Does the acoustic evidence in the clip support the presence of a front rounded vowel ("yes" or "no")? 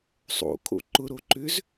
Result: yes